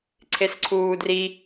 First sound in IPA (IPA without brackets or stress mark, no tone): ǀʰ